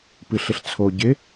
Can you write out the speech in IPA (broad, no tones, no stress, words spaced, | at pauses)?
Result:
pɨɬɪɬt͡sʰo ɟɪ